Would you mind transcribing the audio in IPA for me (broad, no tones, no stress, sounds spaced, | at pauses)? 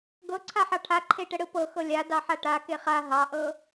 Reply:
ɡ ɤ ǀʰ a ħ ɑ ʈʰ a ǃʰ e ʈ ə ɽ ɯ p ɤ x ɤ lʲ a d ɑ ħ a ʈ a k e χ a ɦ ɑ ʔ ɤ